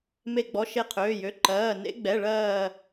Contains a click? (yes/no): yes